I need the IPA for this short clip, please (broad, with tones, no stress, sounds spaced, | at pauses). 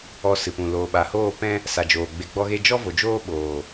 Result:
ɔ˧ s ɨ˨ p ũ˨ l oː˨ ɓ a˨ h oː˦˨ p ɛ̃˦ | s a˨ d͡ʒ oː˨ ɡ͡b e˨ ɡ͡b ɔ˧ ɣ e˧ d͡ʒ ɔ˦ v o˨ d͡ʒ oː˦ ɓ oː˨